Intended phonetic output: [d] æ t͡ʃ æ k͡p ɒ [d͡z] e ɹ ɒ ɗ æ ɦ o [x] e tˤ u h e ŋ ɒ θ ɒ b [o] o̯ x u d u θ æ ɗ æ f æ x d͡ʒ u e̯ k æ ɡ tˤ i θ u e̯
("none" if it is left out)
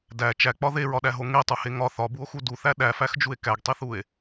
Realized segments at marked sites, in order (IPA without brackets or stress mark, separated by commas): d, ð, ŋ, u